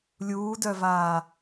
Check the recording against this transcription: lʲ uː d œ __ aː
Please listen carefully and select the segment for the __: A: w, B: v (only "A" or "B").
B